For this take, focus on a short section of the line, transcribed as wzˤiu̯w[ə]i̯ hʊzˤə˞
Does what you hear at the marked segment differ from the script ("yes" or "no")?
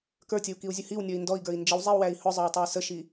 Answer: yes